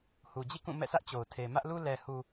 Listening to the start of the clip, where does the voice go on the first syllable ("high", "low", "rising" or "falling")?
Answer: low